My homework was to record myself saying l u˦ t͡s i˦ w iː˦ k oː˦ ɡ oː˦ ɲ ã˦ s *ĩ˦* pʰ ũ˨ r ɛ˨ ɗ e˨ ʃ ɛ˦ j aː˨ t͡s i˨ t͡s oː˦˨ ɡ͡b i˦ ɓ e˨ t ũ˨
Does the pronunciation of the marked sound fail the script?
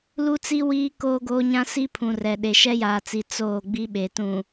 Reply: yes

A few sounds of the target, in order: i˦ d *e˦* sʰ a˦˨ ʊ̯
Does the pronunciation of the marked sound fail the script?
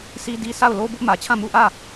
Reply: yes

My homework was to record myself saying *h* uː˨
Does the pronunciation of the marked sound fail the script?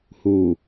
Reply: no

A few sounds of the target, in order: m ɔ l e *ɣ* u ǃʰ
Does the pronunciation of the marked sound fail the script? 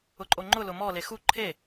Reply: yes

